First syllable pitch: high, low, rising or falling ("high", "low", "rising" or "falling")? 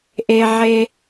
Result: high